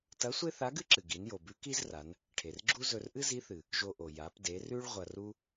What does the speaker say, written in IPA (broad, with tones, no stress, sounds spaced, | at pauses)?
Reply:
t ɐ˧˥ sʷ e˥ θ a˧˥ ɡ ɨ˥ ǁ ɨ˩ ɡ i˩˧ n j o˩ b ʉ˧˥ k i˥ z r a˩˧ n | ʈʰ e˩ r ɡ͡ǁ u˥ z ɵ˧ r ʔ ɨ˥ z i˧˥ θ ɨ˩ | ʒ o˧ ʔ o˩ j a˩˧ p d e˩˧ r ʉ˥ ɭ ʁʷ ɐ˧ r u˥